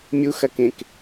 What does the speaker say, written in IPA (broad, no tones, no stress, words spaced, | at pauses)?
mʲuxɐkẽk